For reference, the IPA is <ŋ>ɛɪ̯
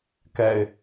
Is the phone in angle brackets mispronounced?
yes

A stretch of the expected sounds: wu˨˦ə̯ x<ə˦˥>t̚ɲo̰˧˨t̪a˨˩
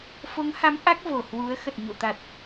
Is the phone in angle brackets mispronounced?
yes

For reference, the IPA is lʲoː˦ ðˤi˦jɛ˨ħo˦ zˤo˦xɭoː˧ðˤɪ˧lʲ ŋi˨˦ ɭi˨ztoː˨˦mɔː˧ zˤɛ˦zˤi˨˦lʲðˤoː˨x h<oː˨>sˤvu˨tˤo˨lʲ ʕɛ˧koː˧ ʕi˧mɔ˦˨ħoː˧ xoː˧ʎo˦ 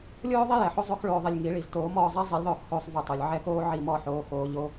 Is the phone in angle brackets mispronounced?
yes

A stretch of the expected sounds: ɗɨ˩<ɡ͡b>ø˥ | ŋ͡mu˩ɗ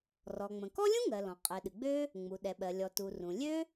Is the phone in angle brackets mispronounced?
no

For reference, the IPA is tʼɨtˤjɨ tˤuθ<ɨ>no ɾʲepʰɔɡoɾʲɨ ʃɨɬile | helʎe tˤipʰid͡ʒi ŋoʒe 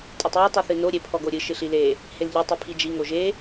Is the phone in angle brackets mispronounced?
no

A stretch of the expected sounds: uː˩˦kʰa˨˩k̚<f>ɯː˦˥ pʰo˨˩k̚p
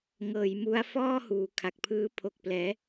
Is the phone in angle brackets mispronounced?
yes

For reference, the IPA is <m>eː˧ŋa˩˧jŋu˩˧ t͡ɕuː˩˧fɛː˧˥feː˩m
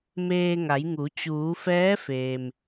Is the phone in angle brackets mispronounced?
no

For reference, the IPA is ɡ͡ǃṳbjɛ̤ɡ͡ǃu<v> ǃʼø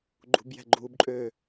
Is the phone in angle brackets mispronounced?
yes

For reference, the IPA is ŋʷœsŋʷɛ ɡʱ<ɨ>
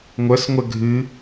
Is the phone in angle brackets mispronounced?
no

